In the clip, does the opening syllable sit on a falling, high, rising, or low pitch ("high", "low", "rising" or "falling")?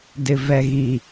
low